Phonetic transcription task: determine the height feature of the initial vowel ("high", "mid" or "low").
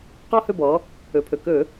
mid